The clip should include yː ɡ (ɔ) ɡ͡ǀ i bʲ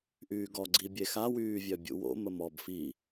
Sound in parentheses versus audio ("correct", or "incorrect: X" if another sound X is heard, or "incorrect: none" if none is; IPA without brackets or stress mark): correct